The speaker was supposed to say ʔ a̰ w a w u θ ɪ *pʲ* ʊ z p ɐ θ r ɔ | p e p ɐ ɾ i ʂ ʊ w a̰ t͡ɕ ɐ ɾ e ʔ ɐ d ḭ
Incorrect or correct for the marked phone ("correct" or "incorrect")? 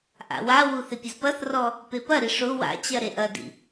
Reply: correct